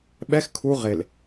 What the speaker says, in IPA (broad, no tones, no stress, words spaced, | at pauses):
ɓɛx kʰu ʁel